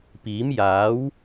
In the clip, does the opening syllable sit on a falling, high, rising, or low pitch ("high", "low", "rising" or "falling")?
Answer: rising